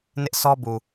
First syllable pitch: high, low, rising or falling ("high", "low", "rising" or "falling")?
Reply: high